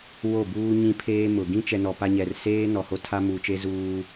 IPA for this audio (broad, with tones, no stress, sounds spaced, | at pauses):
w o˦˨ b uː˦ ɲ ĩ˦ pʰ eː˦ m ʊ˨ ɡ ĩ˦ t͡ʃ ɛ˨ n ɔ˨ p a˦ ɲ ɛ˨ r s eː˦ n ɔ˨ h o˦ tʰ a˦ m uː˨ t͡ʃ e˦ z uː˦